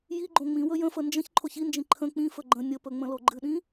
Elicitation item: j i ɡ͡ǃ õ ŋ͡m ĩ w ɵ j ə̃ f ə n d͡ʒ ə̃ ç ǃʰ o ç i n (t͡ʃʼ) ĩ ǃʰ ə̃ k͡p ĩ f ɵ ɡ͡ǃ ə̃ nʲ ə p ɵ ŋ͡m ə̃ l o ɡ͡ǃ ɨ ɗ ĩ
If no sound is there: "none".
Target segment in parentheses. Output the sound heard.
d͡ʒ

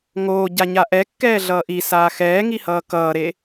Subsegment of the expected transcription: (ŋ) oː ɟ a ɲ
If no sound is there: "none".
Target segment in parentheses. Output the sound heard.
ŋ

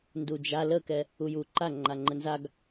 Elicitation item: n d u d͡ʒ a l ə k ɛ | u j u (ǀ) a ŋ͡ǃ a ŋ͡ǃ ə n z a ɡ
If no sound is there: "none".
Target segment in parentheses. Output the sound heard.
ǃ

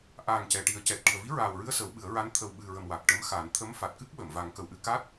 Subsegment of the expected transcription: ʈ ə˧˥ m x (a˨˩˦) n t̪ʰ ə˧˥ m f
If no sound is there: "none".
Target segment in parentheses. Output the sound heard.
a˨˩˦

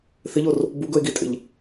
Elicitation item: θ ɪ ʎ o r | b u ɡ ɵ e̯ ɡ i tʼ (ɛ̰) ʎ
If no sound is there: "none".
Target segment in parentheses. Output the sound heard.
ḛ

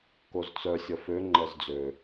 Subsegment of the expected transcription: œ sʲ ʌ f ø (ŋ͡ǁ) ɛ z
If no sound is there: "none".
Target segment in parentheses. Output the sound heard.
ŋ͡ǃ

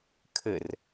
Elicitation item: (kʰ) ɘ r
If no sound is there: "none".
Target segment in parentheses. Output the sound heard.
kʰ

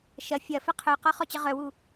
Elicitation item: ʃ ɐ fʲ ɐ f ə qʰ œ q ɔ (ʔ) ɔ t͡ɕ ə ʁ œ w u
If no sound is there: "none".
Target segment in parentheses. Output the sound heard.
χ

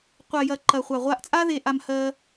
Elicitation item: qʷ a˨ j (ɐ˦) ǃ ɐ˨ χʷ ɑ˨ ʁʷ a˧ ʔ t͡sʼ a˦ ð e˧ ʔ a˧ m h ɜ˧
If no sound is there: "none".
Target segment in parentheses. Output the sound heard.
ɐ˨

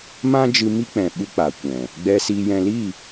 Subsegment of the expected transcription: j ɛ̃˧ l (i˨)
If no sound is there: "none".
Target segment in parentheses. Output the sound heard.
i˦˨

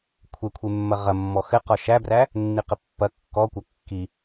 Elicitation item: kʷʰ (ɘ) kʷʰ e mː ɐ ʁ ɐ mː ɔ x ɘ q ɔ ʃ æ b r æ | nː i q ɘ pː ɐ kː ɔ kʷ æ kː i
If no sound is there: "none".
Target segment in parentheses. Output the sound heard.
e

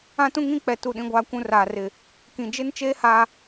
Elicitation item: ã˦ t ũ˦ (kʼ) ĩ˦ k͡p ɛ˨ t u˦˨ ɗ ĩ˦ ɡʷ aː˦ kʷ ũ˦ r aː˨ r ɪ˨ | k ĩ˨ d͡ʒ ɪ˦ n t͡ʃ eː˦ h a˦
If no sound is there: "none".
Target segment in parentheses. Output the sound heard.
ŋ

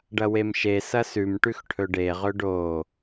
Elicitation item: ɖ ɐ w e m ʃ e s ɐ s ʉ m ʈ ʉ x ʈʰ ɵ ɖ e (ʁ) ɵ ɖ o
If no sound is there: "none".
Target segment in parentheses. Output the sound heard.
ʁ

